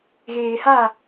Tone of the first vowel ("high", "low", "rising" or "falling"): low